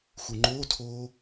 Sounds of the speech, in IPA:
x u ŋ͡ǃ oː tʰ oː

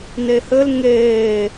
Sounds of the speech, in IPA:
n e h ɘ l ŋ eː

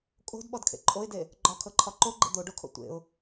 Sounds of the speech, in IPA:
kʼ o̤ d ɓ ɔ d kʰ ḛ ǃʼ o ɪ̯ d e | ɡ͡ǃ ɒ kʰ ɤ ǃʰ ɒ ǃ o ɡ͡ǃ ḛ d̪ o ɖ o kʰ o̰ tʷ ḛ ʊ̯

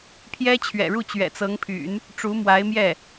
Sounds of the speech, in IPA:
pʰ j ɛ˥ t͡ɕʰ ɥ ɛ̰˨˩ ɻ u˥˩ t͡ɕ ɥ ɛ̰˨˩ t͡s ɤ˧˥ ŋ pʰ y̰˨˩˦ n | ʈ͡ʂ u˧˥ m w a˧˥ ɪ̯ m j ɛ˥˩

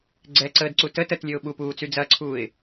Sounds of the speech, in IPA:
ɡ͡ǀ ɛ ǀ əː d ǀ u t ə t ə t lʲ ø ʊ̯ ɓ u p uː t͡s y d͡z ɐ ǀʰ uː ɪ̯

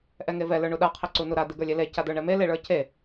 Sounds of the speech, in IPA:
ʔ ɛ ŋ e v ɛ l ə˞ ɳ u ɗ a qʰ e ǀ u n u ɾ a d̪ e ɡ ə˞ lʲ e l e c a d̪ ə˞ ɳ ɛ m e l e ɭ ə˞ c e

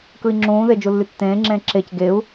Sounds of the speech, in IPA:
k ɯ i̯ ŋ͡ǁ ũː ð e d͡ʒ u lː y tː ẽː ŋ͡ǁ ẽː ǁ e c ɡ e u̯

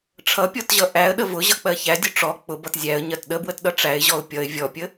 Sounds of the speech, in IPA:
ʈ͡ʂʰ ʌ pʲ ɔ t ʑ ʌ ʔ æ ə̯ ɗ ə v ʊ ʑ ʌ k͡p ɜ ç æ dʲ ʊ ʈ͡ʂ ɔ k͡p ʊ b ʌ t zʲ æ ə̯ ɲ ɜ t ɗ ə b w ə t ɗ ʌ ʈ͡ʂ æ ɪ̯ ʑ ɔ ʊ̯ pʲ ʌ ɪ̯ vʲ ɔ pʲ ə

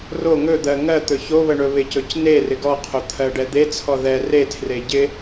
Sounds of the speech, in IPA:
r o ŋ ɵ d̪ ɜ ŋ ɜ t̪ ɵ ç o β ə ɳ ɵ β ɪ c ɵ c n e r ɪ ɡ ɔ qʰ o t̪ʰ ɜ ɖ ɛ d̪ e t͡sʰ ɔ ð ɛ r e tʰ r e ɟ ɪ

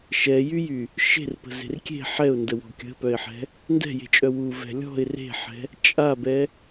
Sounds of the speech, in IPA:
ʃ ɛ j y j y | ʃ e̤ r p ə̤ z e̤ r kʲ e̤ ħ ɛ ʊ̯ n d ə w ɔ̤ kʲ ə̤ p œ ɪ̯ ħ ɛ̤ | n d ɛ̤ j e̤ t͡ʃʼ œ w u v ɛ̤ lʲ ɔ̤ ɪ̯ r e̤ ħ ɛ̤ | t͡ʃʼ a b ɛ

